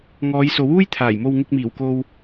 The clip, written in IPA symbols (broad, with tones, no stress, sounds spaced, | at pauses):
ŋ ɔː˨˧ j s o˨˥ w uː˥ j t̪ʰ aː˨˩ j m o˧ w ŋ ɪ˧ k̚ m iː˨˩ w k o˧ w